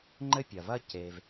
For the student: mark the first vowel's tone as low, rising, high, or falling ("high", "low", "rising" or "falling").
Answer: high